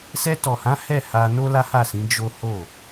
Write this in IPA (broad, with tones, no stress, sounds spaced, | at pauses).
s ɛ˧ t ɔ˨ h ã˨˦ h ɛ˦˨ h a˧ n o˦ l a˦ h a˦˨ s ĩ˨˦ d͡ʒ o˦ h o˦˨